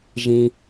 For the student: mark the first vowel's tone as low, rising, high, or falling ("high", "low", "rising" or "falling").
low